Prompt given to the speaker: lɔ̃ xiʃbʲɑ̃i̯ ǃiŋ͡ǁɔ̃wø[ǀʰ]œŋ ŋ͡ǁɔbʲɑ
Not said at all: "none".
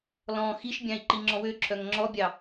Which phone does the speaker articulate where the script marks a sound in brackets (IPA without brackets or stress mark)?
ǁʰ